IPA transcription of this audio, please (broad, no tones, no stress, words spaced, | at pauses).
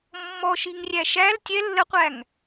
mːɔ ʃiŋrʲæʃæl tʲɛ lːəqʷæŋ